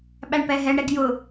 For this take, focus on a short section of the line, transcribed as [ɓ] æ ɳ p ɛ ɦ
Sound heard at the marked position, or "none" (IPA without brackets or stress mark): ɓ